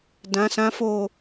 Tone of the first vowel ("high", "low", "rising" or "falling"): low